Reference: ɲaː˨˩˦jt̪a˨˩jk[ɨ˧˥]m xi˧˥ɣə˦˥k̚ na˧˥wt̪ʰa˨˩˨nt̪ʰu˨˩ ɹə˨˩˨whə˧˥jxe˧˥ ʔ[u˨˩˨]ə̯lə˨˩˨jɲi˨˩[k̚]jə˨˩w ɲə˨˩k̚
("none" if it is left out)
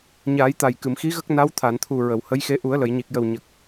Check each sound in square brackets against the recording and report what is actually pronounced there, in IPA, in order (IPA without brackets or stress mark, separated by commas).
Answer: ɨ˨˩˨, u˨˩˦, k̚